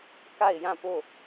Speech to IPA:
k a˦˨ ɪ̯ j ã˦˨ p o˦˨

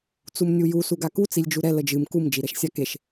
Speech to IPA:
t͡s u m nʲ u j u s u ɡ a k u t͡s i lʲ d͡ʒ u ɾ ɛ l ə d͡ʒ ɨ m k u m d͡ʒ i ɾ ɛ ʃ sʲ a k e ʃ

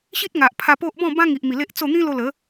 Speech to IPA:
ɕ i˦ t̚ ŋ a˨ ʔ pʰ a˧ p o˦ ʔ b ɔ̃˥˧ b ã˦ ŋ i˨ ʔ m i˨˩ l e˦ ʔ t͡s o˥˧ n̪ ĩ˦ l o˧ l ə˨˦

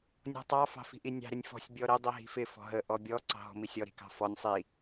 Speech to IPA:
nʲ ɔ̤ tˤ ɑ f ɑ̤ f i̤ ʔ i nʲ ɑ̤ ɾ ɪ nʲ f ɔ̤ sʲ bʲ ɔ ɾ ɪ dˤ i ɦ i̤ f ɪ f ɔ̤ ɦ ə ʔ ɔ bʲ ɔ ǀ ɑ̤ ɦ ɔ̤ m i sʲ ɔ ɾ i̤ k ɑ̤ f ɔ nʲ sˤ i

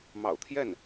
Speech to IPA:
m ɑ̰˨˩ ʊ̯ t̪ʰ j ɛ˥˩ n

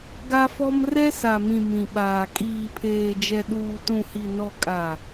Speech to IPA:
ɡ a˦ f ɔ˦ m r ɛ˦ s a˨ m ĩ˨ m ĩ˨ ɓ aː˨ kʼ iː˨ pʰ eː˨ d͡ʒ ɛ˨ ɗ uː˨ t ũ˨ h i˨ n ɔ˨ kʼ a˨

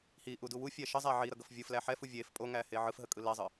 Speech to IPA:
h i ʔ u d u w u fʲ æ ʃ ə zˤ æ ʕ i ɾ ʌ ɡ ʌ f vʲ ɯ f l æ ħ ɛ f u vʲ e f pʼ o ŋ æ h e ʕ ɯ f ɦ ə kʼ ɯ l ɛ zˤ ɯ

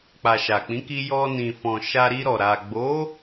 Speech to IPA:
k͡p a˨ ʃ a˨ k͡p ĩ˨˦ k i˧ j ɔ˧ n ĩ˨ f ɔ̃˨ ʃ a˧ ɾ i˧ ɾ ɔ˨ ɾ a˨ ɡ͡b o˨˦

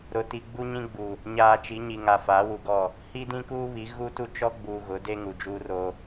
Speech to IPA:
ɾ ʊ˨ t i˨ ɡ͡b u˦ ɲ ĩ˦ ɡ͡b u˨ | ɲ aː˨ t͡ʃ i˨˦ ɲ i˨ ŋ a˨ f aː˨˦ w u˨ ɡ ɔ˦˨ | h i˦ d ĩ˦ k uː˦ β i˨˦ ɣ u˦ t u˦ t͡ʃ ɔ˦ ɡ͡b uː˨ ɣ ʊ˨˦ d e˦ ŋ u˨ d͡ʒ uː˦ r o˦

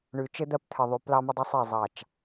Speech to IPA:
ɳ ʉ˨ t͡ʃ ɘ˦ d̪ ɜ˦ p t̪ʰ ɘ˨ ðˤ ʉ˨ p l ɑ˦ m ə˦ dˤ ə˦ sˤ i˦˨ zˤ ɑ˦˨ t͡ʃ

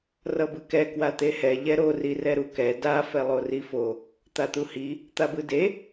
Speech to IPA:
r ʌ b ɯ k ɛ k w a t̪ e h ɛ ʎ ɛ ɾ o r i r ɛ ɾ u k ɛ d a f ɛ lˠ o r i f o | t̪ a t̪ u h i | t̪ a b ɯ d e

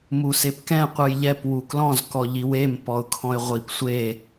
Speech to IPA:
m u s e p k ɛ̃ qʷ ɯ j ʎ ɛ p w u k l ɔ̃ z k ɔ ʎ i w e m p ɔ ʊ̯ kʰ ɔ̃ ɪ̯ ʁʷ i p sʷ e

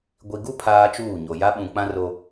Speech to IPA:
ɡʷ i˨ ɡ u˦ pʰ aː˦ t͡ʃ uː˦˨ ɲ o˨ j a˦ ɓ ũ˨ k͡p ã˦ r o˦

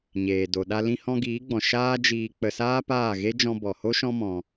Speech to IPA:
ɲ eː˨ d o˨ ɗ a˧ l ĩ˧ h ɔ̃˧ ɡ iː˨˦ ɡ͡b ɔ̃˨ ʃ aː˦ d͡ʒ iː˧ k͡p ə˧ s aː˦ p aː˦˨ ɣ e˦ d͡ʒ ɔ̃˧ b ɔ˨ h o˦ ʃ ɔ̃˦ m ɔ̃˧

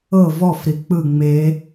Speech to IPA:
ɤ v ɔ f ɾ i k͡p ɯ ŋ͡m e

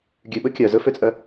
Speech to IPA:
ɡʲ ʉ ɓ ɵ kʲ œ z ɵ f ø t͡sʼ œ

